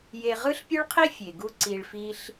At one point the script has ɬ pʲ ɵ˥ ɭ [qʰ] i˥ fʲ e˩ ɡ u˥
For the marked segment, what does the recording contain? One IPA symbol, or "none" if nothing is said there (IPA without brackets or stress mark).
qʰ